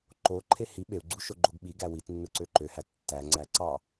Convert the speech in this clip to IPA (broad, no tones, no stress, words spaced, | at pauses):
ǃoǃʰe hi ɓeu̯ɡ͡ǀu ʃoɡ͡ǃoɡɓiɡæ witnːɯ ǀøǃøhæ tːæŋ͡ǀæ ǀɑ